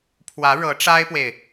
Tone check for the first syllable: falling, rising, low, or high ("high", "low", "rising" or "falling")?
rising